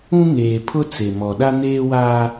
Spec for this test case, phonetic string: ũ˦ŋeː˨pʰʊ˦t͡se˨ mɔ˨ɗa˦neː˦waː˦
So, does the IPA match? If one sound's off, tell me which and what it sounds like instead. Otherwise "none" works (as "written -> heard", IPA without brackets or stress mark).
none